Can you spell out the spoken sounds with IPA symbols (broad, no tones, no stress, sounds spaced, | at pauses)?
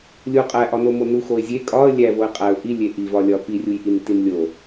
lʲ u qʼ æ ʔ ɒ n o m o n u x o ɪ̯ zʲ e kʼ ɒ ə̯ lʲ æ v o ɪ̯ qʼ æ ʊ̯ ʔ i lʲ e ʔ i v ɒ lʲ ɒ p i rʲ u j ʔ i n t i n lʲ o